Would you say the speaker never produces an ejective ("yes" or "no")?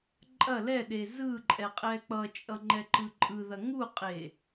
no